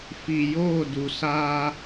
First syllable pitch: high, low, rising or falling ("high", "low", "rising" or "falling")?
low